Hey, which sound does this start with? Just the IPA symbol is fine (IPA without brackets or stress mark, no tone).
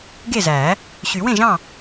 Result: ɡ